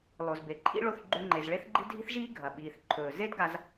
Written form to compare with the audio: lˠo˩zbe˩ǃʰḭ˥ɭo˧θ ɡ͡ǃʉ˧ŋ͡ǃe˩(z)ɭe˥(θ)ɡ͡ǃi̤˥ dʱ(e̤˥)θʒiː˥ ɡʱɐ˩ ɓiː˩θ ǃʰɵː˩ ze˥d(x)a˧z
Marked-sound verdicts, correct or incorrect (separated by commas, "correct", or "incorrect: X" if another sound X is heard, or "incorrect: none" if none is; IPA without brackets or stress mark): correct, correct, incorrect: i̤˥, incorrect: ɡ